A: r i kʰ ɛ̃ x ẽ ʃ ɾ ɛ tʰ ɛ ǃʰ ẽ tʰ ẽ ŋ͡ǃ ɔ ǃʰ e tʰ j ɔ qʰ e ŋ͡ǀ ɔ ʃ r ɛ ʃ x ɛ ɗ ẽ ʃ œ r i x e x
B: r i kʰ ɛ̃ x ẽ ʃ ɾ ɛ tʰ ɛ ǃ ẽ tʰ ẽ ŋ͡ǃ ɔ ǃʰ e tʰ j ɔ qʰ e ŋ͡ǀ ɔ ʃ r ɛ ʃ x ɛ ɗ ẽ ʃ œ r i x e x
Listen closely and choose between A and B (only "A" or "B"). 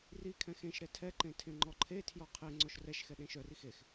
B